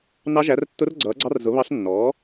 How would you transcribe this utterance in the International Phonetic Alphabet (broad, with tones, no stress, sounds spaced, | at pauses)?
n ɑ˧˥ ʒ æ˩˥ r tː ʊ˧˥ r ɡ͡ǀ ʌː˩˥ ɡ͡ǀ ɑ˧˥ r z ʊ˩˥ β ɑ˧˥ ɬ nː ɔː˩˥